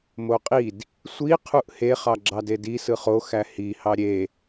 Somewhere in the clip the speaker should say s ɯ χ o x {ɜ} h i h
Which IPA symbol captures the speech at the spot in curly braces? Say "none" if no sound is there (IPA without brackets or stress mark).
æ